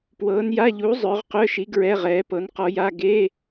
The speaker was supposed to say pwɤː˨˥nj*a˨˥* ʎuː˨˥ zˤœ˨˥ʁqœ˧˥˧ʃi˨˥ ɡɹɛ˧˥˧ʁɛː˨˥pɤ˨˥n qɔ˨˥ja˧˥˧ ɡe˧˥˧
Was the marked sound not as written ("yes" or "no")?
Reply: yes